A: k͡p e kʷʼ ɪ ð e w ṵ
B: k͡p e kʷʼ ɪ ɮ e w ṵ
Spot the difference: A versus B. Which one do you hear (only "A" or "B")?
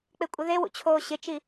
A